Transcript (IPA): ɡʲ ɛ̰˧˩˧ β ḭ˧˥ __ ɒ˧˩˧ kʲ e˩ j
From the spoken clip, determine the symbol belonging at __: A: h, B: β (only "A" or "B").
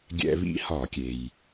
A